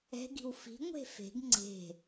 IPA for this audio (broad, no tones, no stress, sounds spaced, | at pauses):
ɛ̤ ɡ i̤ w f i̤ ŋʷ e̤ f e̤ ɡ ŋ͡ǀ e̤